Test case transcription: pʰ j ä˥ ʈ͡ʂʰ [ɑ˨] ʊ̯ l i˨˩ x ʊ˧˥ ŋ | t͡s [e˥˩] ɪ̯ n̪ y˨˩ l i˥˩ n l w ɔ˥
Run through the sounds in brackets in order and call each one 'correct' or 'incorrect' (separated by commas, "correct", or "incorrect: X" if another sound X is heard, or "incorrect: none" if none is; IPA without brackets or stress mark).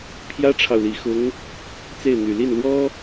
correct, correct